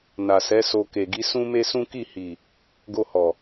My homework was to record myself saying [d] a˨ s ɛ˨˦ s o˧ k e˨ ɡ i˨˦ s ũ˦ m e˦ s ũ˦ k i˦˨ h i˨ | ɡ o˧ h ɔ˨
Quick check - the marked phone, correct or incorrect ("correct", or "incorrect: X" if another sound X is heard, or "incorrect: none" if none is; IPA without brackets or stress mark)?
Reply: incorrect: n